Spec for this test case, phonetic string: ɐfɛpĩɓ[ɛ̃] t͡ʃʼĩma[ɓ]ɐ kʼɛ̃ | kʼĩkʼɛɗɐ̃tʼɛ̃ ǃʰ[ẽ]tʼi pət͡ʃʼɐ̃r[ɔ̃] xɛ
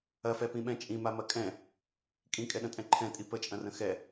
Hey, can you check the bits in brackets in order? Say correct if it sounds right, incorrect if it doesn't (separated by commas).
correct, incorrect, incorrect, incorrect